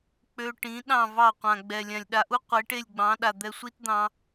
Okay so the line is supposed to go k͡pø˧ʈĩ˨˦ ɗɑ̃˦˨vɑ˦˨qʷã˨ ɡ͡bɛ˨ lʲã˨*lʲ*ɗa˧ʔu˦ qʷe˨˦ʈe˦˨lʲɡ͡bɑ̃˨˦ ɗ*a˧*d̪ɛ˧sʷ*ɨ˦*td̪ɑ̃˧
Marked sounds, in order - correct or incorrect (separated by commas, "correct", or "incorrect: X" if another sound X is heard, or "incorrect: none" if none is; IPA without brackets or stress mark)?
correct, incorrect: a˨, incorrect: i˦